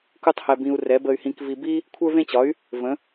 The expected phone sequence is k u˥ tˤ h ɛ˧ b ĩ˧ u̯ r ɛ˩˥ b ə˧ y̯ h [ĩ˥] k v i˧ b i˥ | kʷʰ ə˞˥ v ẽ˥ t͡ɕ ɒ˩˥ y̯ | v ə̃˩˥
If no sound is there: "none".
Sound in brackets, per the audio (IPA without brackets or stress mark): ĩ˧